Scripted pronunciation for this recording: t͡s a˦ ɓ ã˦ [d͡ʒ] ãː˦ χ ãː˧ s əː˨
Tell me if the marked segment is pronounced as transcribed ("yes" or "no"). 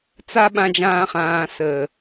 yes